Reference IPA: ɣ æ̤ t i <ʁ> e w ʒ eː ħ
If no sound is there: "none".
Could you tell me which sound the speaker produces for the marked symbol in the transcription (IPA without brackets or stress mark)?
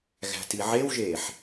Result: ʕ